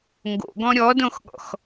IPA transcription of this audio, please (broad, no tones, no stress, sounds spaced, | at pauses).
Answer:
ŋ ɡ o̰ ɡ ɔ̃ ɾʲ ɔ d õ x ɠ ɔ̰ x